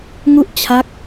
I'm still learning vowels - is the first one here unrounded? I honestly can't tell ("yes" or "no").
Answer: no